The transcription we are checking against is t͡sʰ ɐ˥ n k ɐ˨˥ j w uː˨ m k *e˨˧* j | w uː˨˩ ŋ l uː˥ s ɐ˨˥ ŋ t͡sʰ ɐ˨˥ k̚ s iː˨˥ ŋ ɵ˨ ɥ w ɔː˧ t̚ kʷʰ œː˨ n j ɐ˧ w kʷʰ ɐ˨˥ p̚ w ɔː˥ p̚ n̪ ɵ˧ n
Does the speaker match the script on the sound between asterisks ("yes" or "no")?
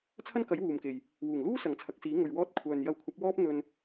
no